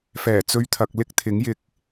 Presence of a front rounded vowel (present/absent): absent